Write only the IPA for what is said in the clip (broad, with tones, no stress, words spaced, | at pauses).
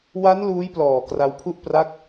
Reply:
wa˦˥n luː˦˥jplɔː˨˩ kra˧wpʰu˥˩ʔ pra˦˥k̚